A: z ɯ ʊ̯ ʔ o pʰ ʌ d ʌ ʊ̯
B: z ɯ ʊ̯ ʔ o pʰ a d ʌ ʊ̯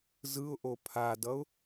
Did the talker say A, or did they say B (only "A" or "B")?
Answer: B